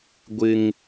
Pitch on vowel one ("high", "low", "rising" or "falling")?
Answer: high